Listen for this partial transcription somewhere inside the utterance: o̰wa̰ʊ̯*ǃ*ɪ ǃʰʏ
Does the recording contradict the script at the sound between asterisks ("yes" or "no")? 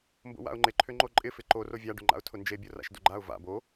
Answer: yes